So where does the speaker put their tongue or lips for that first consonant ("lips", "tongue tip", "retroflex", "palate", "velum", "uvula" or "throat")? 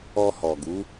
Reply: throat